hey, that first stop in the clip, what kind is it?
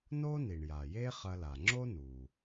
click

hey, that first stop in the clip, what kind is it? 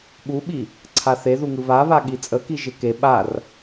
implosive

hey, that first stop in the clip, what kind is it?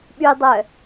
implosive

